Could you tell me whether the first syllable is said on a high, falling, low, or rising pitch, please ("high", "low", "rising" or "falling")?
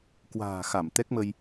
low